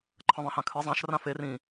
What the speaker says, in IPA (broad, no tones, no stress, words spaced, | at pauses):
ǃʰə̃ðˤĩhãkʰɨ zˤãʃ rãfer ĩ